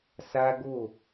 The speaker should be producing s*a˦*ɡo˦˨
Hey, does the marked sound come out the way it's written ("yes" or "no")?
yes